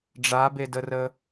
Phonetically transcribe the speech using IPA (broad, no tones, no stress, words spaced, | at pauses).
ɖ͡ʐabedərə